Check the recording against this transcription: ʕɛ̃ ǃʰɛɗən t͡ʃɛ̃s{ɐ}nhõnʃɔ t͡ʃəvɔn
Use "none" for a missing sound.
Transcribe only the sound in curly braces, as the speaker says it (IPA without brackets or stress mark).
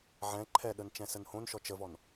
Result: ə